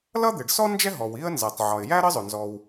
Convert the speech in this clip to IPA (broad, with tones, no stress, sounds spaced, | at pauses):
l ʌ˥ d̪ ɪ˩ ɖ s ɔ˥ n d͡ʒ ɛ˥ ɦ ɔ˩ w i˥ ə̯ n z ɜ˩ tˤ ʕ ɒ˩ ɪ̯ j æ˥ ɾ ə˥ zˤ ʊ˩ n z ɔ˩ w